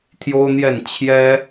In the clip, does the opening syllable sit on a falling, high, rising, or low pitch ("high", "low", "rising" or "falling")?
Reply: high